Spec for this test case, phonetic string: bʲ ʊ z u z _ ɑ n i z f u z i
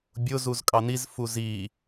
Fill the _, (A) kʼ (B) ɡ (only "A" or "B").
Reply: A